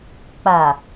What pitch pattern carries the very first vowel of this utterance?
low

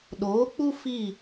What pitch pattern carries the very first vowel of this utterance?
rising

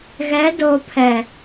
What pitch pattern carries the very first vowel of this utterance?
rising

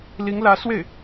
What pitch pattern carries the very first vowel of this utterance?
rising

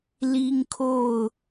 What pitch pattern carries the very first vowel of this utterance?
high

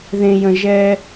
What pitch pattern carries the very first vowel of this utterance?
high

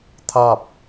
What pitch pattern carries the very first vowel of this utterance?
falling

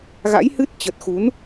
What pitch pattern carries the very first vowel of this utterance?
rising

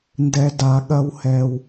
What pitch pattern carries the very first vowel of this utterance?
low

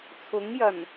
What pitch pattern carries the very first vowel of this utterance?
rising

